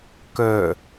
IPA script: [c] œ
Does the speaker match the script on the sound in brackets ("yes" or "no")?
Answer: no